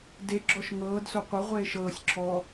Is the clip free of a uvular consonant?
no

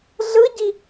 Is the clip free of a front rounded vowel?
yes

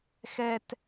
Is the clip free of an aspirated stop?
yes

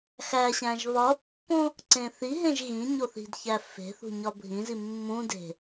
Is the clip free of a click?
no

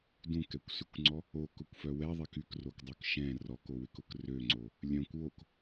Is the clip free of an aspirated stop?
yes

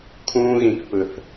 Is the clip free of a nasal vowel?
no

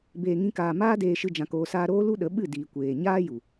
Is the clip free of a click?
yes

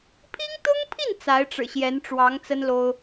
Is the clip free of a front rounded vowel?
yes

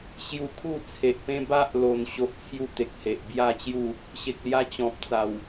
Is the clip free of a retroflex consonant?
yes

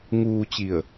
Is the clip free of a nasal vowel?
yes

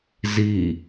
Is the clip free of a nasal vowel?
yes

